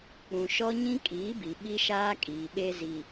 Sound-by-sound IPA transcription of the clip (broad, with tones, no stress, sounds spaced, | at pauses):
k͡p ũ˨ ʃ ɔ˦ ɲ ĩ˦ kʼ iː˨˦ b i˨ ɓ i˦ ʃ aː˦ kʼ iː˨ ɓ e˦ z i˨